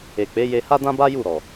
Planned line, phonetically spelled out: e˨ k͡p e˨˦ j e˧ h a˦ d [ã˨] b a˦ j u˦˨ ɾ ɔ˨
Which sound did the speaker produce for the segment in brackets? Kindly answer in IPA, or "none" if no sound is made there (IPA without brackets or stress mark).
ã˦